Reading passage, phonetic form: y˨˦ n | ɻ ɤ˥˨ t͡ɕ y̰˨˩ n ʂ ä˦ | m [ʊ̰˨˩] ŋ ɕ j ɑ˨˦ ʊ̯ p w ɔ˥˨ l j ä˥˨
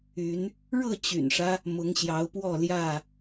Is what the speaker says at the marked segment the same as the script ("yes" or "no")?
no